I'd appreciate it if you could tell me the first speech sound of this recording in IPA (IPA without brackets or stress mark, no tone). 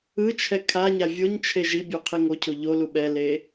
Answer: ɯ